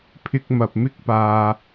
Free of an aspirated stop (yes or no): no